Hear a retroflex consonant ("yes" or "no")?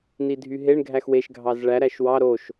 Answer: yes